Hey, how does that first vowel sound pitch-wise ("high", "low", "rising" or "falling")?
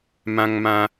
high